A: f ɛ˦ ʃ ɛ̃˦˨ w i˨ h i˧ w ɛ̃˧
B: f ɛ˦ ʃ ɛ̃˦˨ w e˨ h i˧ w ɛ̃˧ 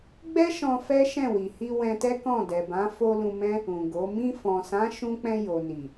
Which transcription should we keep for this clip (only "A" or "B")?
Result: A